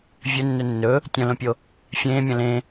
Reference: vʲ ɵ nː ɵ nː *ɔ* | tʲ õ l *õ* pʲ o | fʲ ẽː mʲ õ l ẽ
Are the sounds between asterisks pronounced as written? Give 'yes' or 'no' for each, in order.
no, yes

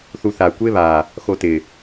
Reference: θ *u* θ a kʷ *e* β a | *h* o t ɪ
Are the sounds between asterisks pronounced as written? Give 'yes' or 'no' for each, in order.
yes, yes, no

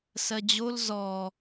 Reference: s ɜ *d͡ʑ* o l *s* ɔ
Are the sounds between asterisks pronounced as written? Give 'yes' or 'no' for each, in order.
yes, no

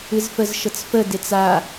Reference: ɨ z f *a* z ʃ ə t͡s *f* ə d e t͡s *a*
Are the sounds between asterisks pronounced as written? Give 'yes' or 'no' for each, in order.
no, yes, yes

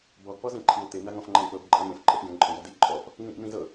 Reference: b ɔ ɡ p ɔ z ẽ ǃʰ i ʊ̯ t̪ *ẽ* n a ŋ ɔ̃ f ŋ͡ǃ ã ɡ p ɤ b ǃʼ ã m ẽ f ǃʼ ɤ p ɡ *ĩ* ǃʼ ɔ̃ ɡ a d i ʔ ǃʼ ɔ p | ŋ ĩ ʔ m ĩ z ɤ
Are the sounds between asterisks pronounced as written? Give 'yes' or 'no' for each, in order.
no, no

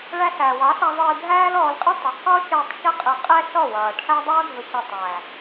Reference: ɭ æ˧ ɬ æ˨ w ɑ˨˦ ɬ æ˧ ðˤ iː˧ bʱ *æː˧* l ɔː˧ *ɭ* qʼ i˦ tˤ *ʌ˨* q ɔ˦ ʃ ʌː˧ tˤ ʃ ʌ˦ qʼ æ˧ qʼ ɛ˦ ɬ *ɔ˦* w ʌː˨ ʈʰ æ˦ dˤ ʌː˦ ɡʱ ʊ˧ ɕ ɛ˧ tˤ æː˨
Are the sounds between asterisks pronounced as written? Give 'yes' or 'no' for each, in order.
no, no, yes, no

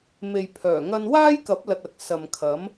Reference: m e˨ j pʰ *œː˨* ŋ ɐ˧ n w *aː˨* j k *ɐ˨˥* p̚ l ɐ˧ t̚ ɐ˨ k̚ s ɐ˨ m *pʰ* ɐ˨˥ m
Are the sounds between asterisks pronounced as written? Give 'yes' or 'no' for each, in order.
no, no, yes, no

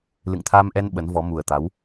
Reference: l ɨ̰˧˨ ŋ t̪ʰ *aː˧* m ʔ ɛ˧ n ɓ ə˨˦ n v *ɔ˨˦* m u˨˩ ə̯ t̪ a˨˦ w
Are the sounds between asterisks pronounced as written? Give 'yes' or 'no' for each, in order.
yes, yes

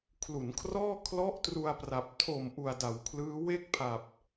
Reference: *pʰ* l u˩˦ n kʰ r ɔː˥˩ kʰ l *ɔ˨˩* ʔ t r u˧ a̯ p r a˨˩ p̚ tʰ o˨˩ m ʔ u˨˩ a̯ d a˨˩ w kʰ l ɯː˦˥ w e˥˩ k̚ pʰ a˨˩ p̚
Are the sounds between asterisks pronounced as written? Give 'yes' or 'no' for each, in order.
no, no

